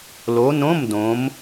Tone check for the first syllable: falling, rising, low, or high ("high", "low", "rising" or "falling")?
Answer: rising